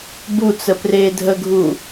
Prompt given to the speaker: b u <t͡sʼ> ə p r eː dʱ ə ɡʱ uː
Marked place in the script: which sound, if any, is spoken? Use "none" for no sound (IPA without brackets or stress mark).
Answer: t͡s